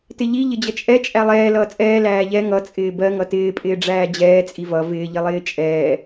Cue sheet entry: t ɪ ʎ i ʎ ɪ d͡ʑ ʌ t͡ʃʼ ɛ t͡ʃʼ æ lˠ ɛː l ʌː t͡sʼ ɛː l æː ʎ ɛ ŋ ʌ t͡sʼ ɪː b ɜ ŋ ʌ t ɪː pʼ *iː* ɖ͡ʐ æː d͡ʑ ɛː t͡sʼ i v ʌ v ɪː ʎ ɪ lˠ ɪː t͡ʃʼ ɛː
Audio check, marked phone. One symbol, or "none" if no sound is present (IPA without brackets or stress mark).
ɪː